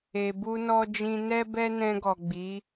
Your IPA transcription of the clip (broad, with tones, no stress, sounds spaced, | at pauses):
e˨ b u˧ n ɔ˧ d͡ʒ ĩ˧ n ɛ˦ b ɛ˦ n ɛ̃˧ ɡ ɔ˨ ɡ͡b i˨˦